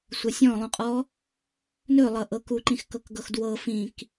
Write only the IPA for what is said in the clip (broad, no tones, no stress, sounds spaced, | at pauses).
sʷ ɤ sʲ ɔ̃ lˠ ũ qʼ ɔ | n ɵ lˠ ʌ ʔ ɤ k u ǃ ĩ x k ɤ k ɡ ɤ x d w ɤ f ĩ k